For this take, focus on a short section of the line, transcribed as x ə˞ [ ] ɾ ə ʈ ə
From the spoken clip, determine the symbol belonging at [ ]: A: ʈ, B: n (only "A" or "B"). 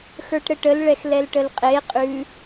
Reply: A